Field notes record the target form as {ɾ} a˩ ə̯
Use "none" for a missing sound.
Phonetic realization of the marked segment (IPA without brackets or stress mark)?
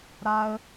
ɾ